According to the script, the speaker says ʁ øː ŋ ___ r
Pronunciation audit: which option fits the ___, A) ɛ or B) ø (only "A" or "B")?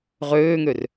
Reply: B